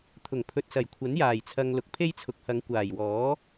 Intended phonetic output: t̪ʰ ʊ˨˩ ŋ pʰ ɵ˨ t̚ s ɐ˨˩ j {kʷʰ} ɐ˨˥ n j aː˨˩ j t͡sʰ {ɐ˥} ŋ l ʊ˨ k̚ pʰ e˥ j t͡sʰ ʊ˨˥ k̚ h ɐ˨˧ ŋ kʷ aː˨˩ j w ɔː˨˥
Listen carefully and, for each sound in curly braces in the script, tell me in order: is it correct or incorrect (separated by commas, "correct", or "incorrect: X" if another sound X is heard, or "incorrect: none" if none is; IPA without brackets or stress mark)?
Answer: correct, incorrect: ɐ˨